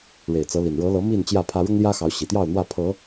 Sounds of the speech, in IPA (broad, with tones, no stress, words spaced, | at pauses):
ɻe˨˩ɪ̯t͡sɤ˨˦li˨˩n ɻɤ˨˦ lɤ˨˦ mi˥˨nt͡ɕjä˥˨pʰä˦ ɻʊ˦ŋljä˦xɑ˨˦ʊ̯ ɕi˨˩t̪jɑ˥˨ʊ̯n̪wä˥˨ pʰɤ˨˦